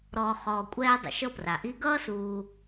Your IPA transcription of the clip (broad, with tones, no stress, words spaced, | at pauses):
ɾɔː˨ χɔː˨kʷʼɛː˦ dˤə̰˩ʃɤ˥pra˩ʔi˥ ɡʌː˥suː˨